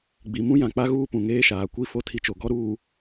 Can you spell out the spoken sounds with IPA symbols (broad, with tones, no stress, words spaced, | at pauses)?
ɡ͡bi˨mũ˦jã˨ k͡pa˦ɣuː˦pũ˨ ŋeː˦ʃaː˨ kʷi˦ fo˦tʰi˦t͡ʃo˨ ɡɔ˦ ɾuː˨